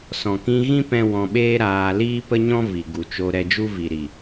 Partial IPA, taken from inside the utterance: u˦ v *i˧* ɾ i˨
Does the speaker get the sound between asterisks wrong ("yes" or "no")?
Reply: yes